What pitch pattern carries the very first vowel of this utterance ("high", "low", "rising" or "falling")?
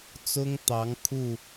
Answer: high